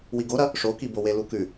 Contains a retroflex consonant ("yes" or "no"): yes